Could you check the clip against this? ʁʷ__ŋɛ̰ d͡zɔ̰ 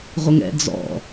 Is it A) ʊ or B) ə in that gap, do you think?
B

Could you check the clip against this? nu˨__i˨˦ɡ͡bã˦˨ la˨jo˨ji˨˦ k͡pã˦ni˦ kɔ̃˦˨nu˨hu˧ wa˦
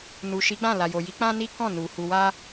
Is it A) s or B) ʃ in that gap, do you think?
B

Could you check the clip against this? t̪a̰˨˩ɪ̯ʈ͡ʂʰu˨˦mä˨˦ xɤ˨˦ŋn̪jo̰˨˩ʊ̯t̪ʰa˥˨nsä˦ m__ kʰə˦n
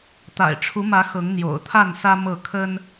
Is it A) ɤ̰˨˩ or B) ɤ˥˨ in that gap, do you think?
B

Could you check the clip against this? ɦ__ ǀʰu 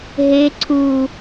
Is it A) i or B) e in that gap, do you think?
B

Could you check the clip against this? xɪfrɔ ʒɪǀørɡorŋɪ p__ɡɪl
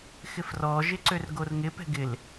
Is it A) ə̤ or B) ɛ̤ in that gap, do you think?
B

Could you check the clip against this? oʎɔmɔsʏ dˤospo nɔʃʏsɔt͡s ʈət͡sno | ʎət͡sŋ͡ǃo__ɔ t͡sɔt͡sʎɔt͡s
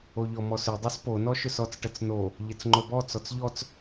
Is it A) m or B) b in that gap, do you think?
B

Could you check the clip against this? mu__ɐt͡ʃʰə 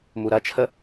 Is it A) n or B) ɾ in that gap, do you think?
B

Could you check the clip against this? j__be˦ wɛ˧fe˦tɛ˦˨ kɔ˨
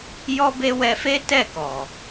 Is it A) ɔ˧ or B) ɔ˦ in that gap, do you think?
B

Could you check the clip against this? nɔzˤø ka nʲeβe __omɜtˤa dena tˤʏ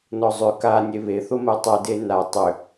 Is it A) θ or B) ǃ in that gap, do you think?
A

